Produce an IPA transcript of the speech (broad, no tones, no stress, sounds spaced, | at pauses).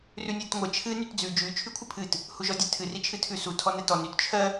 r ʉ nʲ ɛ t ŋʷ ɜ t͡ʃʰ ɨ n y t d͡z ʉ d͡ʒ ʉ t͡ʃʰ y kʷʰ ɨ pʰ ɨ t | h u ʒ ɔ dʲ ɛ tʰ ɨ r i t͡ʃʰ ɨ tʰ ʉ s u tʰ ɔ n ɛ t ɔ n y t t͡ʃʰ ɜ